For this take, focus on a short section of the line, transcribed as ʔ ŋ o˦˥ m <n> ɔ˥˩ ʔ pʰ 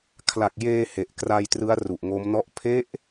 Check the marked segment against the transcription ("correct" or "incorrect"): correct